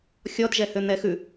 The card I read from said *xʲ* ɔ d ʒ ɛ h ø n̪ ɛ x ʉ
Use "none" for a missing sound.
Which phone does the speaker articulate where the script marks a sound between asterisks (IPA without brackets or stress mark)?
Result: xʲ